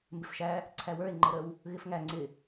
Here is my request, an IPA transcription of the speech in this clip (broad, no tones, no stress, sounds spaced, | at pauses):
m b ɪ f ʃ æ | ǀʰ æ w ə˞ e̯ ŋ͡ǃ ə ɾ ə w | ɣ ɪ f ŋ æ ŋ͡ǀ ɪ